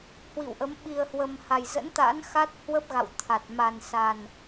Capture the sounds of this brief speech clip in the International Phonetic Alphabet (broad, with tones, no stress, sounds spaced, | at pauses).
h w ḭ˧˨ w ʔ ə˨˦ m ɓ i˨˩ ə̯ h w ə˨˩ m h a˨˩ j z ə̰˧˥ n t̪ a̰˧˥ n x a˦˥ t̚ h w ə˦˥ p̚ ɣ a̰˧˨ w t̪ʰ a˨˩ t̚ m a˨˩ n s a˨˩ n